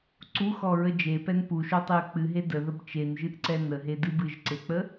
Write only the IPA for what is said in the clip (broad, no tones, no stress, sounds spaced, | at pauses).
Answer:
ǀ u x ɔ ɹ ə d͡ʒ e p ɛ n p u ʃ o tˤ e ə̯ k͡p ɨ ɦ e d ə ð ə b t͡ʃ e n ʒ ɨ ʔ ǀ ɛ n ə ɦ e d ɨ b ɨ ʒ ǀ e k͡p ə